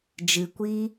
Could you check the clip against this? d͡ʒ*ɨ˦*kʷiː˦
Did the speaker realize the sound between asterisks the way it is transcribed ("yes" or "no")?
no